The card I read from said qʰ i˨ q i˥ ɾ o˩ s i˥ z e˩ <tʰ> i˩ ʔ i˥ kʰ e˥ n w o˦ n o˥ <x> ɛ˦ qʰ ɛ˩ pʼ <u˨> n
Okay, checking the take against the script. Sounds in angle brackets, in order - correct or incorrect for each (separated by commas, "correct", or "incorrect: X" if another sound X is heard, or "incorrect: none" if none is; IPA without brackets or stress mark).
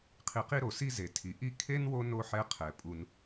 correct, incorrect: ħ, correct